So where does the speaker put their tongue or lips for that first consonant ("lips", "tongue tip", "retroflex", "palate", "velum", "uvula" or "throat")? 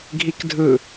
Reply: velum